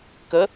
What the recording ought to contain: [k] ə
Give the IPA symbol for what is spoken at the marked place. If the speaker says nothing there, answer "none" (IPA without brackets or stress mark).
k